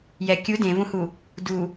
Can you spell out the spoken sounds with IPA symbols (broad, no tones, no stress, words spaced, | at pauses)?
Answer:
jɛ kʲu dẽvũhu | du